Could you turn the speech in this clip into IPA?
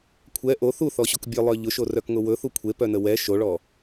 kʷʰ ɛ ʔ o θ u θ ɔ ɕ o k bʲ œ lˠ œ ʎ ʊ ʃ o r œ k ŋ ʊ w ɵ θ u kʷʰ e p œ n ə w ɛ ʃ o ɭ ɔ

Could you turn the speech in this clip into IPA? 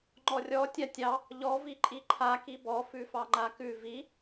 ŋ͡ǃ ɔ rʲ ɔ tʲ a tʲ ɑ | ʎ ɔ v i ǃʼ i ǃʰ a k i b ɔ f ʉ f ɑ ŋ͡ǃ a k ʉ v i

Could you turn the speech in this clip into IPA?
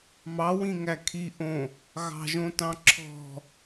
m ɑ w ĩ ŋ æ kʰ i ʔ õ | ɣ ɑ̤ ʒ õ t ɑ̃ ǁʰ ɔ̤

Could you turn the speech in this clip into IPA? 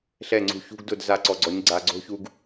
ɬ ɛ˦˨ ŋ͡ǀ ṳ˧ ç ṳ˦ ɡ d ʊ˦˨ d z a˧ ǀ ɔ˨ ɡ͡ǀ ɔ˨˦ ɲ ɡ͡ǀ a˨ ɡ͡ǀ o̤˦ ç u˧ ɡ

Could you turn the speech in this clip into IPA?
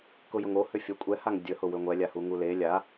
k ʊ j ʊ ŋ o h ʏ fʲ ə kʷʼ ɛ h a ŋ dʲ ə h ʊ w ʏ ŋʷ ɛ lʲ a h u ŋ u l e lʲ a

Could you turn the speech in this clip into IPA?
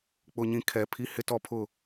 k͡p ʊ˦ ɲ ĩ˦ kʰ ɛ˨˦ pʰ i˦ h ɪ˦ t ɔ˦ pʰ ʊ˦˨

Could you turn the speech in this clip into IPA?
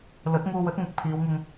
l ɵ˨˥ t̚ ŋ uː˧ w ɵ˨˥ t̚ ŋ ɪ˨ k̚ pʰ iː˨˧ w ŋ ɪ˧ ŋ

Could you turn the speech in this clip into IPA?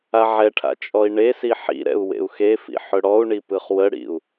a ʕ ɛ ʈʰ a̰ t͡ʃʼ ɔ i̯ ɳ e s i ħ ḭ ɾ ɛ̰ u̯ w ḛ u̯ x e f ḭ ħ ɵ ɽ ɔ u̯ ɳ i p ɯ χ w ə ɽ ḭ u̯

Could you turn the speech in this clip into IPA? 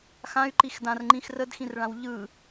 x ã y̯ ǃ i x d ã r ŋ͡ǃ ĩ x r ə d x ĩ r ɭ ã w ʎ ɯ

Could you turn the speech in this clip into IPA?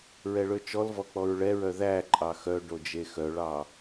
ɹ ɛ ɭ ø t͡ʃ ɔ l v ɔ k͡p ɔ ɹ ɭ ɛ ɹ œ ð æ ǃʼ ɑ x œ ɖ o d͡ʒ e x œ ɭ ɑ

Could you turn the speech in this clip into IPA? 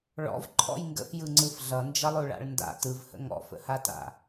ɭ ɔ̰ v ǃʰ ɔ̰ j ŋ ɡ ə̰ f j ɯ ŋ͡ǀ ɯ f ɮ ʌ n d͡ʒ ʌ lˠ o ɭ a̰ ɭ n d a̰ t ɯ v h ə̰ ŋ ɔ̰ f ə̰ h a t a̰

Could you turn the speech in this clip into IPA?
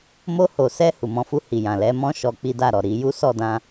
m o˧ h o˨ s ɛ˧ h u˨ m ɔ̃˨˦ f u˧ h i˨ j ã˨ l ɛ˨˦ m ɔ̃˦ ʃ ɔ˧ k͡p i˦ d a˦˨ ɾ ɔ˨ ɾ i˨˦ j u˦ s ɔ˦˨ d ã˧

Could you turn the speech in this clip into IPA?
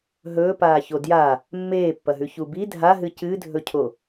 ɦ ɵː p aː ç o d j a | mː eː pː ɐ ɦ ʉ ç u b i dʱ a ɦ ɨ c ɨ dʱ ɵ cʰ o

